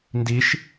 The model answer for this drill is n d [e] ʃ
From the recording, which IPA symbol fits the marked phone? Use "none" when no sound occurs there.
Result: i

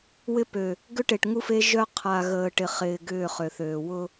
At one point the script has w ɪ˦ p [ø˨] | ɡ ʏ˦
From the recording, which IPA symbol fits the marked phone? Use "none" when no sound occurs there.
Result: ø˨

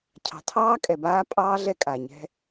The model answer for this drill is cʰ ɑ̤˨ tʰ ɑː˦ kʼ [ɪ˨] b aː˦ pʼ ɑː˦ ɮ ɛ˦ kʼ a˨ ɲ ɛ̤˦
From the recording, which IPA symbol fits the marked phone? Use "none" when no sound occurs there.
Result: ɛ˨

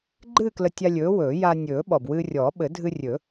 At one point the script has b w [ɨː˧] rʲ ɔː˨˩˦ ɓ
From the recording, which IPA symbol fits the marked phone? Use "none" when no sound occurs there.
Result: ɨː˧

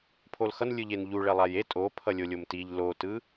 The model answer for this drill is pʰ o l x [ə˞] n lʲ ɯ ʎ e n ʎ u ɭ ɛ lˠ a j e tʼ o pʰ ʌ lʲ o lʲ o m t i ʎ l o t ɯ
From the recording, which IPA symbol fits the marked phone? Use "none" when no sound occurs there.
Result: ʌ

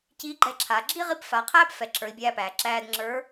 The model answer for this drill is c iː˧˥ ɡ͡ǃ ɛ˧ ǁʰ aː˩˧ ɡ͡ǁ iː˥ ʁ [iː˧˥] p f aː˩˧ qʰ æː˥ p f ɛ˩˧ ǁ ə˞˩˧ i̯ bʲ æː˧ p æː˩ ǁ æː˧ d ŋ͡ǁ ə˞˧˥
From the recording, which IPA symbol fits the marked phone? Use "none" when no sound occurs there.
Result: i˧˥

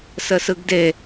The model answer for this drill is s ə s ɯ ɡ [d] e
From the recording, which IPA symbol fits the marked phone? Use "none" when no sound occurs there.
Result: d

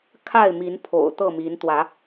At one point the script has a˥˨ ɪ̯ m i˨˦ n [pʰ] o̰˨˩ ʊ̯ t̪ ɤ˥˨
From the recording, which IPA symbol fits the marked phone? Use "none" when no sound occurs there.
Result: pʰ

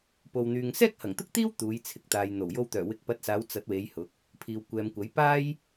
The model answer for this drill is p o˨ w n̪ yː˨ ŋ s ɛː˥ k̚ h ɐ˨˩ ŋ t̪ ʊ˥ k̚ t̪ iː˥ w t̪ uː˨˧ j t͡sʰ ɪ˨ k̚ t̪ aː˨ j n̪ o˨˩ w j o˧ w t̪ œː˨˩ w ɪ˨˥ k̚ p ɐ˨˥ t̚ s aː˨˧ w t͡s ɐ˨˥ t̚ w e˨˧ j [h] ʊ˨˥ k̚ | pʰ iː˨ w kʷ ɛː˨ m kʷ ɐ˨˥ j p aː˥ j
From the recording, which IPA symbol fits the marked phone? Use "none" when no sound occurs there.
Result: h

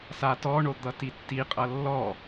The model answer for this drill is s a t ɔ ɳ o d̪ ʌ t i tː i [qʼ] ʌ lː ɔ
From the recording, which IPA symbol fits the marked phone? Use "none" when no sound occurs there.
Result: qʼ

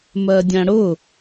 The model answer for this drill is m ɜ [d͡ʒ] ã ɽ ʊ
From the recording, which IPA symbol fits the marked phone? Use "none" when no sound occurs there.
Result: dʲ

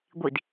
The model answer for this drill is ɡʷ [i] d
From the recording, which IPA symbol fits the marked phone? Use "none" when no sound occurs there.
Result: i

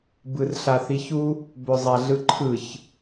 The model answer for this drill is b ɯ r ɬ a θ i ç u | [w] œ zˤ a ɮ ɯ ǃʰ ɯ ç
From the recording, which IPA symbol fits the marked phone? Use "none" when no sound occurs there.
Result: b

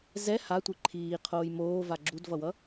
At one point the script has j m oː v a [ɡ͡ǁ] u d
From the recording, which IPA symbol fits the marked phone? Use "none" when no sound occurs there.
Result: ɡ͡ǁ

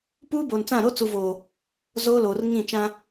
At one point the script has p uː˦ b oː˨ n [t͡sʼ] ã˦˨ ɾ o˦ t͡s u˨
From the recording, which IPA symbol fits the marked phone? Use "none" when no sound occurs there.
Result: t͡s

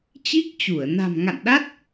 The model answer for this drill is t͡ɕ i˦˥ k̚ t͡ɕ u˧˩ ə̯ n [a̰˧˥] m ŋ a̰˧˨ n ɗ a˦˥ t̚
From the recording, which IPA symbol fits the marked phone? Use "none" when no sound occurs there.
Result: a̤˨˩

